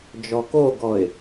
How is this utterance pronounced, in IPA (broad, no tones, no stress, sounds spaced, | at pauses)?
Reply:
d͡ʒ ɔ k o ɡ ɔ ɪ̯